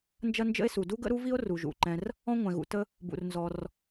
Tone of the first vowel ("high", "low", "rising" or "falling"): high